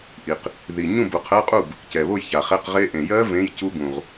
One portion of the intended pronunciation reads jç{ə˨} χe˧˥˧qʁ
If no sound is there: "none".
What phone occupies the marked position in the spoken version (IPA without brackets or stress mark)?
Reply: a˨